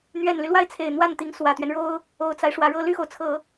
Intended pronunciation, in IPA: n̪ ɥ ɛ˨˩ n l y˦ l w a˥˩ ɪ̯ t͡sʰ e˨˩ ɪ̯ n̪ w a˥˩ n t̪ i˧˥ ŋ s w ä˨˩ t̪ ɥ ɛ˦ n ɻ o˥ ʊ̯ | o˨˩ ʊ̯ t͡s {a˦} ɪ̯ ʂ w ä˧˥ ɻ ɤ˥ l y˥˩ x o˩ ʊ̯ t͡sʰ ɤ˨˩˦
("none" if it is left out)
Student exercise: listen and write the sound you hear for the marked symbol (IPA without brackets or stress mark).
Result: a˦